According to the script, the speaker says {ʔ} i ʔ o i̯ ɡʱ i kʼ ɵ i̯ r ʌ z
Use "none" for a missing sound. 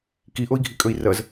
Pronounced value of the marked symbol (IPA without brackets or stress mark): k